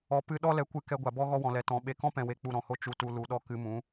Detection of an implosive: present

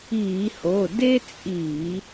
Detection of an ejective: present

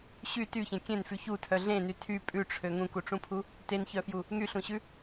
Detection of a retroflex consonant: present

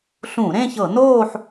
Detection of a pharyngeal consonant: present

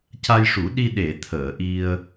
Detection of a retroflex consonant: present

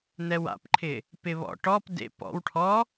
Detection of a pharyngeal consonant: absent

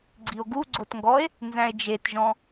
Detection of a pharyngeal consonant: absent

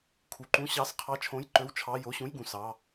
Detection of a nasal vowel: present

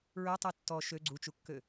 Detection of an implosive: absent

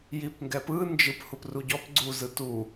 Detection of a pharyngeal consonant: absent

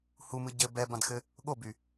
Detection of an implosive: present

